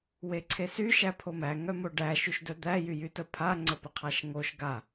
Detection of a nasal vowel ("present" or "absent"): absent